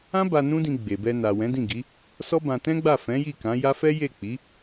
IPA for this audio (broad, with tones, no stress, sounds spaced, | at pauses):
ã˦ b a˧ n ũ˦ d ĩ˧ ɡ͡b e˨ b ɛ˧ n a˨ w ɛ̃˨˦ d ĩ˦˨ ɡ i˨˦ | s ɔ˦ b ã˧ t ɛ̃˦ ɡ͡b a˦˨ f ɛ̃˨˦ j i˦˨ k ã˨˦ j a˦ f ɛ˦ j e˦˨ k͡p i˨˦